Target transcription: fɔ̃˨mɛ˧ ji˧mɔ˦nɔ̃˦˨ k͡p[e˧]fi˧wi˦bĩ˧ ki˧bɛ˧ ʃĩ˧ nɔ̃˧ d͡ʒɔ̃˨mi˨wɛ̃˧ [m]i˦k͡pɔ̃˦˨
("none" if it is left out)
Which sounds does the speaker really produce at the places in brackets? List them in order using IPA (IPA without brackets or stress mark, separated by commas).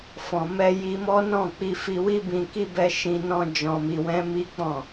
i˧, m